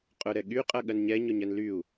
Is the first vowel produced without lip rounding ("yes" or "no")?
no